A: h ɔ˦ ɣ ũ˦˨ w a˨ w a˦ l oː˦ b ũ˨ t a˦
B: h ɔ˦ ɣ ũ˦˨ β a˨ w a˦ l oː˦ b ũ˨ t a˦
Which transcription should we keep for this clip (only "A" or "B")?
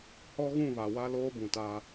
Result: B